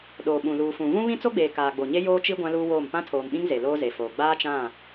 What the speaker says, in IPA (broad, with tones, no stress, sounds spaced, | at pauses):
ɗ oː˨ ɓ ũ˨ l uː˨ f ũ˨ v ũ˦ β ĩ˦ t͡s o˦ ɡ͡b eː˨ k aː˨ ɡ͡b o˨ ɲ e˦ j oː˦ t͡ʃ i˦ ɡʷ ã˦ l uː˦ w oː˦˨ m p ã˦ tʰ oː˨ m ɓ ĩ˦ ŋ z e˨ l oː˦ z e˨ f oː˨ ɡ͡b aː˦ t͡ʃ ã˦˨